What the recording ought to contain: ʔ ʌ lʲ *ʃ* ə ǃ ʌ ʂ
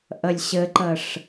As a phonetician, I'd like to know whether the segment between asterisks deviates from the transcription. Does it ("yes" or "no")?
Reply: yes